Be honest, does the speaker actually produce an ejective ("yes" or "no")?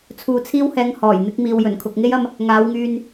no